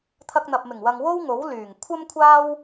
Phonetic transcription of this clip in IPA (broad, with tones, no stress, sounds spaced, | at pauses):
t̪ʰ ɐ˧ k̚ n̪ ɐ˨ p̚ m ɪ˨˩ ŋ w ɐ˨ ŋ w o˥ w ŋ o˨˥ w l yː˨˩ ŋ kʷʰ ɐ˥ m kʷʰ aː˥ w